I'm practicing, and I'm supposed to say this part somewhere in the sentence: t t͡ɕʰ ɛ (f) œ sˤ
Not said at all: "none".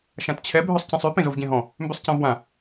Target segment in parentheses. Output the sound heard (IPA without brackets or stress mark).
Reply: bʱ